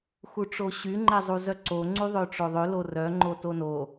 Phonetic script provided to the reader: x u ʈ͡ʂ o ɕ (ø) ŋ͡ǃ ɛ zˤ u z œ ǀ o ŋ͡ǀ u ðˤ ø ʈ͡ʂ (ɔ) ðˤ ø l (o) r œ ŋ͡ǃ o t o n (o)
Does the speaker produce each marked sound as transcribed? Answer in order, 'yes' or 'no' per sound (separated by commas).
no, no, yes, yes